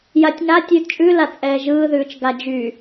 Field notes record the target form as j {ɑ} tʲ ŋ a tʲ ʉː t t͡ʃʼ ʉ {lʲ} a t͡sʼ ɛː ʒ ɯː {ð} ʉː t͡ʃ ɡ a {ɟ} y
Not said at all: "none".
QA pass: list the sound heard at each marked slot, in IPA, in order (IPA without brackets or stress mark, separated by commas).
a, l, ð, d͡ʒ